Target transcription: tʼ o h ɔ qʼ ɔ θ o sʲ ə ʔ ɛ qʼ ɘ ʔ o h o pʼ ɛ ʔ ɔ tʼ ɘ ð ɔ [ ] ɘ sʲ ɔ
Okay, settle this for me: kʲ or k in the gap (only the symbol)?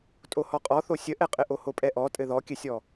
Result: kʲ